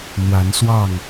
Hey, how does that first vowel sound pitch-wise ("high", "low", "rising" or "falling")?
rising